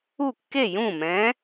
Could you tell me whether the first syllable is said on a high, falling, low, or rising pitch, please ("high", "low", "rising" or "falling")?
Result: falling